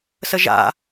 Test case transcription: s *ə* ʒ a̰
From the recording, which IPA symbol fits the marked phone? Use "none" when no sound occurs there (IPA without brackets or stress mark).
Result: ə